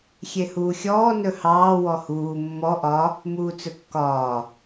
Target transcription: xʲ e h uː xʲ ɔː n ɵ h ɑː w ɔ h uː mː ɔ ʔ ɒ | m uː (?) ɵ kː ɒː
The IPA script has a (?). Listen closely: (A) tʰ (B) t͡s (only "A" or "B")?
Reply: B